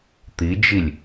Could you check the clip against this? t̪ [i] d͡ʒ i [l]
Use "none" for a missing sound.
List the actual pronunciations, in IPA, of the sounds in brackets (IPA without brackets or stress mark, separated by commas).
i, lʲ